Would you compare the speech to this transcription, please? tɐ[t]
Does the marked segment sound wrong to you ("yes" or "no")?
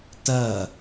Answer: yes